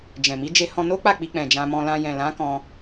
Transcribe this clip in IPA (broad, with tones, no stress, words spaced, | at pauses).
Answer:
d͡ʒɛ̃˨mi˨˦ d͡ʒe˧hɔ̃˧ no˦k͡pa˦˨ k͡pi˧k͡pɛ̃˨ d͡ʒã˧mɔ̃˧lã˧ jɛ̃˨lã˨˦ kɔ̃˧